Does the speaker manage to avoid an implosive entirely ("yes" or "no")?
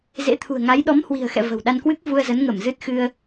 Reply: no